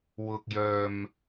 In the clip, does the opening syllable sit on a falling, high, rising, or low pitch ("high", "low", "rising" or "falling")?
low